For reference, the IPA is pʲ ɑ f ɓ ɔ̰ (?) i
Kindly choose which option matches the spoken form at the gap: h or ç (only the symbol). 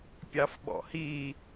h